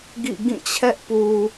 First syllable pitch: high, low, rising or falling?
falling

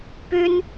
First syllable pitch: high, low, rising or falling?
high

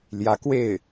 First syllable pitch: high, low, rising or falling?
rising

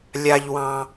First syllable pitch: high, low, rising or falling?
high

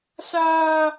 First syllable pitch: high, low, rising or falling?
high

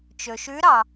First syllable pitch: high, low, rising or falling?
low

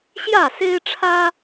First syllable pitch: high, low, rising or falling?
falling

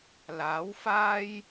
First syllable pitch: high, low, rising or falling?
rising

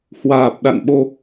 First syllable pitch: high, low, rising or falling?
low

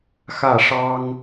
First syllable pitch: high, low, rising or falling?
falling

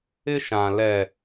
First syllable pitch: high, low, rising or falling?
high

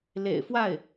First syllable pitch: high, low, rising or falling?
low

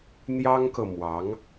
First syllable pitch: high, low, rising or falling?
high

